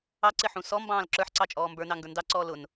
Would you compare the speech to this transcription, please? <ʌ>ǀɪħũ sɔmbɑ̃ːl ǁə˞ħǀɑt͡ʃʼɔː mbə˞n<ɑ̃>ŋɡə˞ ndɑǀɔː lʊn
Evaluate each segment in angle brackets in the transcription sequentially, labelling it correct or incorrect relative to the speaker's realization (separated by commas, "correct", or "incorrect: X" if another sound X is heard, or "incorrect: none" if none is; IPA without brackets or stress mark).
incorrect: ɑ, incorrect: ɑ